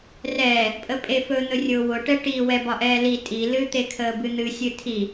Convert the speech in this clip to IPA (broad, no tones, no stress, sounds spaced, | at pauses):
r ɛː | pʼ ə pʼ e f ɵ n̪ ɵ rʲ ʊː w ʊ ʈ ɛ ʈ i w ɛ b ɒ ʔ ɛː l i tʼ i l ɨ t̪ e kʰ əː b ɨ n̪ ɨ sʲ ɨ tʰ i